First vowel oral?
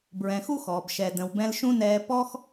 no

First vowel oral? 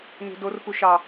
yes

